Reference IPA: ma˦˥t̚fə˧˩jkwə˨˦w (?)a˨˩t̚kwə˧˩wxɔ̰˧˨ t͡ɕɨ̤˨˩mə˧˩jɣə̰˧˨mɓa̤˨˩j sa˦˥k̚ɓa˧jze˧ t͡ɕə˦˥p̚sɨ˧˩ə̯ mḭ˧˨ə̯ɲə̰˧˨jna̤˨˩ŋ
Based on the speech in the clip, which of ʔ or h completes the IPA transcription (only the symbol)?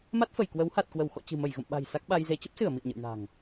h